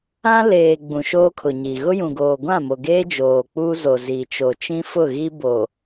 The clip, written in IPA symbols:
ã˦ l eː˨ ɡ͡b ũ˨ ʃ oː˦ kʰ ʊ˨ ɲ i˨ ɣ ʊ˦ j ũ˨ ɡ oː˨ ɡʷ ã˦˨ m o˨ ɡ eː˦ d͡ʒ oː˨ k͡p uː˦ z o˨ z i˨ t͡ʃ o˨ t͡ʃ ĩ˦ f ʊ˦˨ ɣ i˦ b o˨

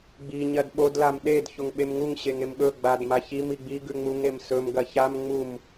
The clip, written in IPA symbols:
ɡ͡b i ɲ ɐ d ɓ o d l a m ɗ e d ç o ŋ ɓ e m ŋ u ŋ ɕ e ŋ e m ɠ ɵ ɡ͡b a d m a ç i m i ɡ͡b i ɡ ʉ ŋ͡m u ŋ e m s ɵ m ɡ ɐ ç a m ŋ͡m u m

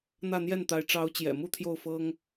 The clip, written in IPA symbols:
n̪ ä˥˧ n̪ j ɛ˥˩ n t̪ a˧˥ ɪ̯ ʈ͡ʂ ɑ˧˥ ʊ̯ t͡ɕ j ɛ̰˨˩ m u˥˧ t̪ʰ j o˥˩ ʊ̯ f ɤ˥ ŋ

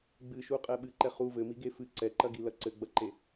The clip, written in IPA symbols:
ɡ͡b ɨ ʃ u qʼ ɛ ɓ ɨ ǃ ɛ χ u v ɘ m i ɡ e f ɨ ǀ ɛ ǃ ɐ ɡ i l ɐ ǀ ɘ ɡ͡b ɐ ǃ e

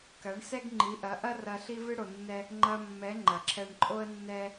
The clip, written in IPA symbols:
k ɐ˨˦ ɳ s ɛ˦ ɡ ŋ͡ǃ i˨˦ ʔ ɐ˨˦ ʔ ɐ˦ r ɐ˧ ɬ i˦ v ɨ˦ ɽ o˧ nː ɛ˦ | ŋ͡ǃ ɐ˧ mː ɛ˨˦ ŋ͡ǃ ɐ˨ ǁʰ ɛ˧ ɳ ǃʼ o˦ ə̯ nː ɛ˦

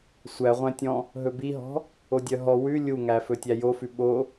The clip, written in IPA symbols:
sʷ æ ʁʷ æ̃ tʲ ɔ̃ | ɦ ɵ b i ɦ ɔ̤ | o dʲ œ ɦ ɔ w ʉ lʲ u ŋ æ f ɵ tʲ æ j o f ʉ ɓ o

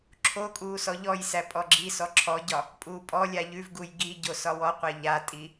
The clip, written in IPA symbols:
ǁʰ o kʼ uː s ɔ ʎ ɔ j s æ pʼ ɔ ɡ͡ǁ i s ɔ ǁʰ ɔ ɟ ɒ | pʼ uː pʼ ɔ lʲ a ʎ ʉ v ɡ u j ɡ i ɟ o s ɒ w ɔ qʷ æ ʎ a tʼ i

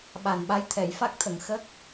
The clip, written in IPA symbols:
ɓ a˨˩ n ɓ a˧˥ j t̪ʰ ɛ˨˩˨ j f a˦˥ k̚ t̪ʰ ə˨˩˨ ŋ x ə˦˥ k̚

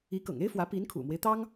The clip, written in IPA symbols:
i˧˥ k ɤ̰˨˩ ŋ e˥ ɪ̯ f w ä˧˥ p i˧˥ n kʰ ṵ˨˩ m w e˦ ɪ̯ t̪ ɑ˥ ŋ

